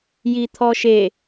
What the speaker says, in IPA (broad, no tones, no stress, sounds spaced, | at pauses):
j i t̪ʰ ɔ ʃ e